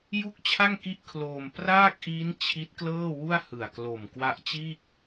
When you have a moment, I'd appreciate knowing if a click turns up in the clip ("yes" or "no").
no